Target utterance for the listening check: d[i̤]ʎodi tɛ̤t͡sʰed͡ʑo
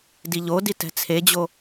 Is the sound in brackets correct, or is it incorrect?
incorrect